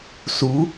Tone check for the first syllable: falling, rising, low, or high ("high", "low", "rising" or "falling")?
rising